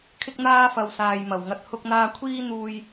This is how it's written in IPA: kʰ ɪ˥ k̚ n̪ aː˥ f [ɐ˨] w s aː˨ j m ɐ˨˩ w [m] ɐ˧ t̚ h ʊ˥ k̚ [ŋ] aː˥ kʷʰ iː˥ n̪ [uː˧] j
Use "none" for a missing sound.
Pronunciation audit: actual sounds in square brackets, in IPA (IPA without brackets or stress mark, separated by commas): ɐ˨, ŋ, n̪, uː˧